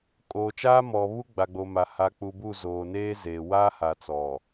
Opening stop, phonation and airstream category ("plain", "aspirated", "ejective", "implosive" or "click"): ejective